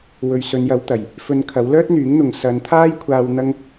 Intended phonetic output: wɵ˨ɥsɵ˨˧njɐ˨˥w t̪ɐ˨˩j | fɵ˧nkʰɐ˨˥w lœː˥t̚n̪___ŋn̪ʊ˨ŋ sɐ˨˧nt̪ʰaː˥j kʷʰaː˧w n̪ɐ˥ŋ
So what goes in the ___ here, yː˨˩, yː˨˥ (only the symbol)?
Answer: yː˨˥